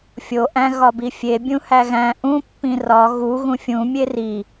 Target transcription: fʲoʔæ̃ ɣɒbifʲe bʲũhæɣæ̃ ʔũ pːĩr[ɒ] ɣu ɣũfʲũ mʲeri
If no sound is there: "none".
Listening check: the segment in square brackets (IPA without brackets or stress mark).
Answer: ɒ